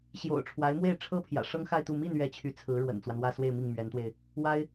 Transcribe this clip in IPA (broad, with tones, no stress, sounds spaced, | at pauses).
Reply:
ɕ j o̰˨˩ ʊ̯ ʈ͡ʂʰ w a˧˥ ɪ̯ m w e˥˩ ɪ̯ ʈ͡ʂʰ ɤ˥ pʰ j ä̰˨˩ ʂ ɤ˥ ŋ x a˥˧ ɪ̯ t̪ u˥˧ m i˥˧ n ɥ ɛ˥˩ t͡ɕʰ y˧˥ t͡sʰ ɹ̩˧˥ ɻ w ə̰˨˩ n t͡s w a˦ n w ä˥˧ s w e˥˧ ɪ̯ m i˥˩ ŋ m ɥ ɛ˧˥ n t̪ w e˧ ɪ̯ | w a˥ ɪ̯